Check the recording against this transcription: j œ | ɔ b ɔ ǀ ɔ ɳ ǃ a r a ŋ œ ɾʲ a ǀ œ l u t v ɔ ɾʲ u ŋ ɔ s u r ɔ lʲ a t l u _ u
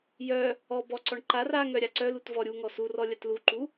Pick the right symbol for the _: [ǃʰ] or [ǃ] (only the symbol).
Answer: ǃ